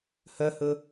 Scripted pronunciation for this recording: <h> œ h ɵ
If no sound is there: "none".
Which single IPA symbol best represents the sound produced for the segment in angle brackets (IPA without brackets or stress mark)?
h